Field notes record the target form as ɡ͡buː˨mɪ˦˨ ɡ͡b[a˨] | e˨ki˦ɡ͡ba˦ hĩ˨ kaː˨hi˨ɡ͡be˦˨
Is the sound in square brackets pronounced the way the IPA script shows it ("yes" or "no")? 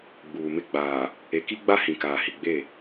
no